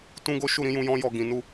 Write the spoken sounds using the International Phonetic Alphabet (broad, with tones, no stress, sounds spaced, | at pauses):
t ũ˦ ɡ o˦ ʃ u˦˨ ɾ ĩ˨˦ j ũ˧ j ɔ̃˦ j ɔ˧ ɡ ĩ˨ n u˧